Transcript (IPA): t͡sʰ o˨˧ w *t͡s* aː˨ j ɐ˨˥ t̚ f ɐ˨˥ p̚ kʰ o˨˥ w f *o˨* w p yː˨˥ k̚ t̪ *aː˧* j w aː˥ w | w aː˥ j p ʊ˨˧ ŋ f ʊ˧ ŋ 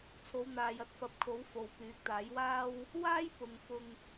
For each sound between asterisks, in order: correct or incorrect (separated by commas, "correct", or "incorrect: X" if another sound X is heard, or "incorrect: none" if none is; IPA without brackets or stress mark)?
incorrect: n̪, correct, incorrect: aː˨˥